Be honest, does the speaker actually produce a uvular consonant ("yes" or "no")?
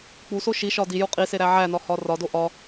yes